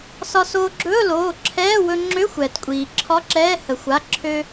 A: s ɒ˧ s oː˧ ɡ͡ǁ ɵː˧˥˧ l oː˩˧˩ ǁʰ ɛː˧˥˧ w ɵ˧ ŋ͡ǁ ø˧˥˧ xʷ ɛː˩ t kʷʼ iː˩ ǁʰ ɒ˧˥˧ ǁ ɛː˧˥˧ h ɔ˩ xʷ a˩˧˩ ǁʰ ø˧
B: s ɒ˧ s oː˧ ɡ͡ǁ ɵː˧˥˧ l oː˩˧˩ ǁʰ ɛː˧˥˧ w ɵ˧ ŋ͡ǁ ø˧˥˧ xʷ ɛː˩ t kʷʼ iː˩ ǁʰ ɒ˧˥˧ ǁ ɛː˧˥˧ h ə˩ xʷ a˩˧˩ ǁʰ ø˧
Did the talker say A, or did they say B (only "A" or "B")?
B